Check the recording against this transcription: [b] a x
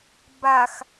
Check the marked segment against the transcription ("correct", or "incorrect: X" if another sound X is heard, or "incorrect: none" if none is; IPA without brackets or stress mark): correct